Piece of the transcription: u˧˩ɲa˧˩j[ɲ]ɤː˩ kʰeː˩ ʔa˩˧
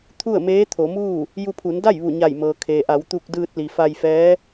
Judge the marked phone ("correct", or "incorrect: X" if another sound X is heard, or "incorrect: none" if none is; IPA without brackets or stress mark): incorrect: m